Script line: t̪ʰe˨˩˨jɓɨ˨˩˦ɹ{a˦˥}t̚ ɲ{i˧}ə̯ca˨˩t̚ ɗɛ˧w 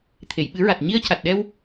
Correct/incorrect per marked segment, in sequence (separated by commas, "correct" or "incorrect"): incorrect, correct